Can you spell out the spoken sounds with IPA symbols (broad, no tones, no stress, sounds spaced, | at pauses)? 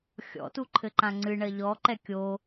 xʲ ɔ̰ t u ǃʰ ɘ ǃ ã ŋ͡ǀ ɨ ɳ ɐ ʎ ɔ ǃ ɛ kʲ o